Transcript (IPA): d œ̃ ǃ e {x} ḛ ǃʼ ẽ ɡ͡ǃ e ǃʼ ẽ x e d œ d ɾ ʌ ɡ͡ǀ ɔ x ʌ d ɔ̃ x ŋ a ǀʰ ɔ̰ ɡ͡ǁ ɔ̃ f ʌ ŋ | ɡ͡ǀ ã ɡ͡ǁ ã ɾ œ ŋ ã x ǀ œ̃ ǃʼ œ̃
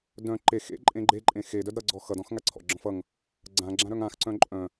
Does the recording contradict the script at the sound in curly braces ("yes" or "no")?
no